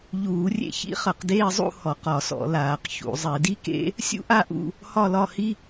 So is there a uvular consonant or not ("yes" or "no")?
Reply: yes